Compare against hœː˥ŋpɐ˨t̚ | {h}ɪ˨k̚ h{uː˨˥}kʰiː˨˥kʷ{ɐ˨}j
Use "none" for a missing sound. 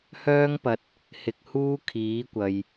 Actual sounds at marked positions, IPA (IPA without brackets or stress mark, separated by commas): h, uː˥, ɐ˨